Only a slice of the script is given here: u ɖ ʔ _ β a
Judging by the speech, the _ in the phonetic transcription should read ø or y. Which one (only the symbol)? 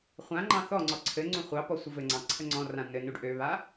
ø